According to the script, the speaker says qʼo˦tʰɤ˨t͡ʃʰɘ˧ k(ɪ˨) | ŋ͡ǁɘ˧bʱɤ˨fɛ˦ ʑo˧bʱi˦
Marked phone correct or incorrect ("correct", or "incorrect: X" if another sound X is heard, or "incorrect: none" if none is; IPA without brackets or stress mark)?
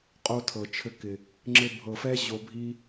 correct